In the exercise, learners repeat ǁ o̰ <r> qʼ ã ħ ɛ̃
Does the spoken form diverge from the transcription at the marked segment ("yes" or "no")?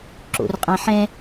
no